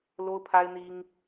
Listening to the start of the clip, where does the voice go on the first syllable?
high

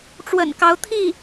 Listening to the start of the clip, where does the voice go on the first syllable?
low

